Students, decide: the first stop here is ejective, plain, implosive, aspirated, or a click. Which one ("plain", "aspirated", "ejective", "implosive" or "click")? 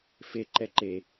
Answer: click